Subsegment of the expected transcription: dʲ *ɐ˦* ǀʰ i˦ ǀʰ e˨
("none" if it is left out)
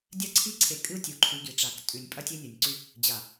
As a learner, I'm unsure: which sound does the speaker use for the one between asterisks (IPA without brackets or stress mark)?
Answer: ɐ˦˨